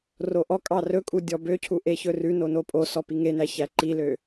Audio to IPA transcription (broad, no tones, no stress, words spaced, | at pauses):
roʔɔ kʼɑrɵkʼu dʲɔbøcʰu ʔeçɵrʉno nopʼosɔ piŋenæçæ ǃilø